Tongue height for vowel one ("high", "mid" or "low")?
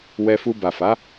mid